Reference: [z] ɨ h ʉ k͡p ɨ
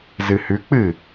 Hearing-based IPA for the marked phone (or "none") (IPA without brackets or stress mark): z